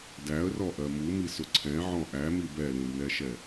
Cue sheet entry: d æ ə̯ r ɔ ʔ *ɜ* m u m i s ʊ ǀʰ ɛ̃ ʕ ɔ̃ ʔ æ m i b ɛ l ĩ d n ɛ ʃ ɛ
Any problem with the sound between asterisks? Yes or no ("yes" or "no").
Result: no